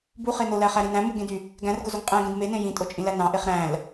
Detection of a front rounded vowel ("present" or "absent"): present